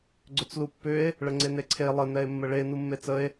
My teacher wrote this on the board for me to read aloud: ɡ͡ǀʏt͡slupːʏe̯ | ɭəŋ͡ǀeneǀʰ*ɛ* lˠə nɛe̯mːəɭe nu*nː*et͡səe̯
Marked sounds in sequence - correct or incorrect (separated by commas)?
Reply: incorrect, incorrect